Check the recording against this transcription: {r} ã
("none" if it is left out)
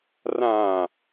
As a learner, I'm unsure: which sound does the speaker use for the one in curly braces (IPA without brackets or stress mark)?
r